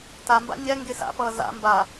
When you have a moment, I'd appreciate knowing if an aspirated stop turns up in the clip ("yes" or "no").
no